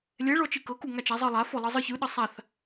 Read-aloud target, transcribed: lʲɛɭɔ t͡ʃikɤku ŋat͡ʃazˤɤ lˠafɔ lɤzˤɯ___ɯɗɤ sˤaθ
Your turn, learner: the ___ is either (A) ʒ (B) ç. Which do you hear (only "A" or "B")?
B